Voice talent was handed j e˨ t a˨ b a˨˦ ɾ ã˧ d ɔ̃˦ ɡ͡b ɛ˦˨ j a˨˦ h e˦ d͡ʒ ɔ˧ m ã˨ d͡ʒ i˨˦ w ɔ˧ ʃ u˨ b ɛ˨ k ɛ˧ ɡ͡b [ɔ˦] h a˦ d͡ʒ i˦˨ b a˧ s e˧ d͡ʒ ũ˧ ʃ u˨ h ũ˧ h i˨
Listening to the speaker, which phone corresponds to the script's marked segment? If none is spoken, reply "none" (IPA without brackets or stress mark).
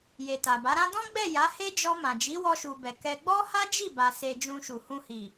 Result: ɔ˦